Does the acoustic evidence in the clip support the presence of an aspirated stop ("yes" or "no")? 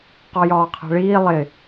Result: yes